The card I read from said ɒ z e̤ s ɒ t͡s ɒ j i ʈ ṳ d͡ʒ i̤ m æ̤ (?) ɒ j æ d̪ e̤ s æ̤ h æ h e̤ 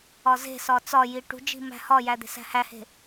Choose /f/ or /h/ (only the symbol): h